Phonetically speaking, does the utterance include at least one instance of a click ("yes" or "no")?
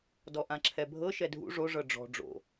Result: yes